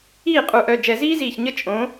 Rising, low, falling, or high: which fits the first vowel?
falling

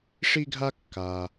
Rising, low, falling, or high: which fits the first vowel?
high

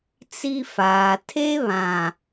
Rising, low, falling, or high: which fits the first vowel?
high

